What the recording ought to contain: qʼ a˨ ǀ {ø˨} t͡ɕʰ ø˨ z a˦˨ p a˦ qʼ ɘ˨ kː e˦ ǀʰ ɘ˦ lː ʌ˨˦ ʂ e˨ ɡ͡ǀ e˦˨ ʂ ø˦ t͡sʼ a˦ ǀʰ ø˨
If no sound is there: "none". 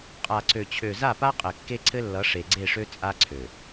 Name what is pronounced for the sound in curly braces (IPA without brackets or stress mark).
ø˨